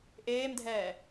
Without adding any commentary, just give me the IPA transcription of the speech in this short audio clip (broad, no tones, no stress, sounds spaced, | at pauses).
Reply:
ʔ eː m dʱ ɛː